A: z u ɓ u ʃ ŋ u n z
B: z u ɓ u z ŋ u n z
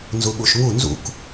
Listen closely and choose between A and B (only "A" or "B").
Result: A